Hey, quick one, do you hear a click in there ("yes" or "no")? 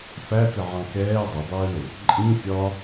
yes